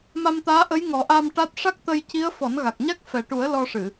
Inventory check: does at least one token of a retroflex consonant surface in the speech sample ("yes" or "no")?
yes